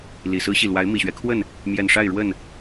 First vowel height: high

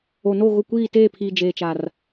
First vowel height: mid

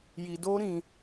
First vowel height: high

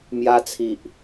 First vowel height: low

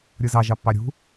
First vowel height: high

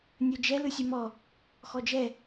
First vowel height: mid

